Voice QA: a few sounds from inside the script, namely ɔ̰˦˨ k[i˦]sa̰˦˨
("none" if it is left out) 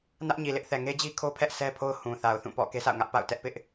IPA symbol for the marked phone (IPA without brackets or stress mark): e˦